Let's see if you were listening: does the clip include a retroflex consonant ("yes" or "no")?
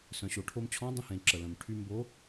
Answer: yes